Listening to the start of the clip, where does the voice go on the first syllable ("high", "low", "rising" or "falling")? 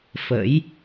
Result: rising